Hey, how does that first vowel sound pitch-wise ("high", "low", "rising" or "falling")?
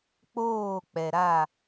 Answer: falling